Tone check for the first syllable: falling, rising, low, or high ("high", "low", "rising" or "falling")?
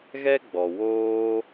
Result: high